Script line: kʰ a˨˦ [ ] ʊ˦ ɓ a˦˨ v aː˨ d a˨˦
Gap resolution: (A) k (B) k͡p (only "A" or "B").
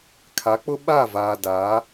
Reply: B